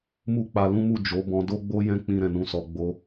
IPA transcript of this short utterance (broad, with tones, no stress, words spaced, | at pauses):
mu˦k͡pa˧lũ˦mu˦˨ d͡ʒo˨˦bɔ̃˧ do˦ɡ͡bo˦ jɛ̃˧k͡pĩ˨ ɾɛ̃˨nũ˨˦sɔ˧ ɡ͡bo˧